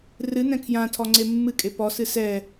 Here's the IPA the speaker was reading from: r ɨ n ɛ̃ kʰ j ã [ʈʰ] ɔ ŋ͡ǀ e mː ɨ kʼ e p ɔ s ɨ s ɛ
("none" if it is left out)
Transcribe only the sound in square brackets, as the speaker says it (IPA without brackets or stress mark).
tʰ